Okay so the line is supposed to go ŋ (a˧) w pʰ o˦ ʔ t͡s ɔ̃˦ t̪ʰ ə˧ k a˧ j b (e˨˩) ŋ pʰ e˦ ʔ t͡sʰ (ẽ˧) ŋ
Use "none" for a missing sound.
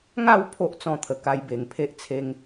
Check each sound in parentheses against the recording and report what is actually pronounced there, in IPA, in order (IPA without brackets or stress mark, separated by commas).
a˥˧, e˨˩, e˧